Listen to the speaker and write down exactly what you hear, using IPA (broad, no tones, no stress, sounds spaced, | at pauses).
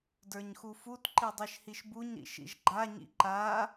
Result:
d ə˞ ɲ x u f u t ǃ i dˤ i ʃ h i ʃ b u ɲ ɾ ḭ ʃ ḭ ʒ ɡ͡ǃ a ɲ ḭ ǃ a